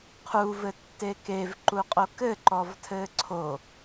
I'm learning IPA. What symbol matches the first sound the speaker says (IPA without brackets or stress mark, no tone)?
qʰ